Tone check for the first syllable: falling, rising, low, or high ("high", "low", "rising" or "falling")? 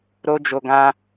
high